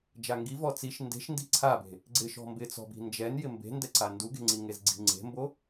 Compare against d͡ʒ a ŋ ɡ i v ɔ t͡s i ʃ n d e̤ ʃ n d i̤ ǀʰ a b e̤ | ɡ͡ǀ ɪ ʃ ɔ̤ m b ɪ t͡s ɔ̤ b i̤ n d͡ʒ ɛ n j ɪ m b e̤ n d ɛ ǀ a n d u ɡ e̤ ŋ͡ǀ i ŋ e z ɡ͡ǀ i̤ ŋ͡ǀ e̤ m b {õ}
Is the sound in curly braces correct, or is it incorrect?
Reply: incorrect: o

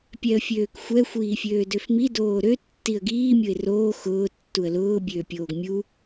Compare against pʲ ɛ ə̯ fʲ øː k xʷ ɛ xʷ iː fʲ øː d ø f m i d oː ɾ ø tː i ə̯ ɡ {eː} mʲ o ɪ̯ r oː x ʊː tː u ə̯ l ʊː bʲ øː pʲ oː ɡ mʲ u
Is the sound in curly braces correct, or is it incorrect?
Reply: incorrect: iː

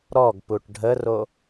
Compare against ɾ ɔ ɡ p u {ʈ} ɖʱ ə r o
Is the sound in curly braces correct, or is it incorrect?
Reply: correct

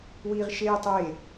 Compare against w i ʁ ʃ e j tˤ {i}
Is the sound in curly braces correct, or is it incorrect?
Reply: incorrect: e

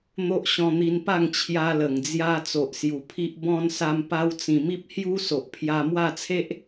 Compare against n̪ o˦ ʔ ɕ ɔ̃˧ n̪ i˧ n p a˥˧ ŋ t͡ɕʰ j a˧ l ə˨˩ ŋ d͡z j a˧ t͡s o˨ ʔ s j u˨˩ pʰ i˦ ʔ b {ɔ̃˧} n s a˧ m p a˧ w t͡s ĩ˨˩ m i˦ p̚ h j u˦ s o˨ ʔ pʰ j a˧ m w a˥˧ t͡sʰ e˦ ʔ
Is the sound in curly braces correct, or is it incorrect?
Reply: correct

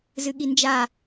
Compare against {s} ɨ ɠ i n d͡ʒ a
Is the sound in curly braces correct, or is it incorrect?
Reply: incorrect: z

